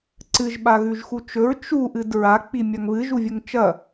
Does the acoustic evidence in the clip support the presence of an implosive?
yes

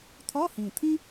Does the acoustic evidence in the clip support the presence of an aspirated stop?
yes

